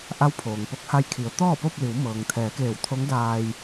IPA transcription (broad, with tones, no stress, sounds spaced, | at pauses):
ʔ a˧˥ w pʰ oː˩ ŋ p o˧ k̚ h a˧ j kʰ i˩˧ ə̯ t̪ ɔː˥˨ p o˥˨ p̚ l i˩˧ w m ɤː˩ ŋ t̪ʰ ɛː˩˧ k eː˧˩ w t̪ʰ o˧˥ ŋ d aː˧ j